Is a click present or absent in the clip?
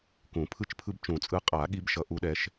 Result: absent